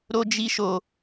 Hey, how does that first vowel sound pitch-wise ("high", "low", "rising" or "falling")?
high